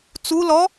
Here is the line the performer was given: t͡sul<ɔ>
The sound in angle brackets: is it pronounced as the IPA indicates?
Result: yes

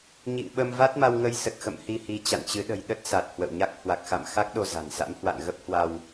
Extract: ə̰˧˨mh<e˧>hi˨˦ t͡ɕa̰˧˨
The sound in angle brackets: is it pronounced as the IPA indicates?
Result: no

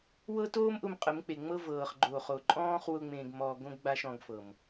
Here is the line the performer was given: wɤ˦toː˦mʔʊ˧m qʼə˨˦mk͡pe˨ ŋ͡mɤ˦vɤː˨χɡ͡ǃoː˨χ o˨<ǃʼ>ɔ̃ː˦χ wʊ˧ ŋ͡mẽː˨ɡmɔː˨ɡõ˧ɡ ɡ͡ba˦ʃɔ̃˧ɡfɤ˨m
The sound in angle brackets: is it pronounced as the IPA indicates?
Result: yes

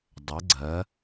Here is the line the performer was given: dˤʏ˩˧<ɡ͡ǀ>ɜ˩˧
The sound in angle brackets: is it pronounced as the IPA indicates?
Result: yes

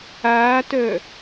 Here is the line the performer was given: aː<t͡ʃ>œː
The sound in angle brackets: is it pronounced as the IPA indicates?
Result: no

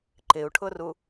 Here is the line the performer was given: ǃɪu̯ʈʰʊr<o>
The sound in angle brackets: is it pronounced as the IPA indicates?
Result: no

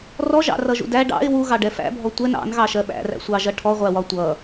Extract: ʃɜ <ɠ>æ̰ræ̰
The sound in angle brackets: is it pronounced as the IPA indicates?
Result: no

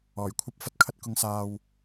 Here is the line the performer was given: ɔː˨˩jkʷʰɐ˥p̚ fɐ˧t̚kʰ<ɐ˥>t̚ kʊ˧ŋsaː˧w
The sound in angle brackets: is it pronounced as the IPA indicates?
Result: yes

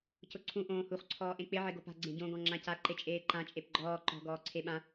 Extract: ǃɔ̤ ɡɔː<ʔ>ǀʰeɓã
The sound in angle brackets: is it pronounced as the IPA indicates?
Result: no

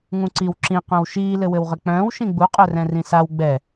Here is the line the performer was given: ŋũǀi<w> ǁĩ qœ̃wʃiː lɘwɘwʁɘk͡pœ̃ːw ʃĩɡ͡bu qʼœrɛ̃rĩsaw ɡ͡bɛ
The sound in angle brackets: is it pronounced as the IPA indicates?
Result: yes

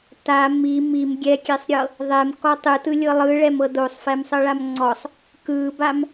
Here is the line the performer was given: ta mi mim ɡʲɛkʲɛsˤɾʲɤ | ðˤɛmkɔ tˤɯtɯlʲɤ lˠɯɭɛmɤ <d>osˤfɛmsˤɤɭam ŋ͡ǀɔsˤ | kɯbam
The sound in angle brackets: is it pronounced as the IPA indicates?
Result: yes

